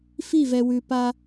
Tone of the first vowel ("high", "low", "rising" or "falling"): falling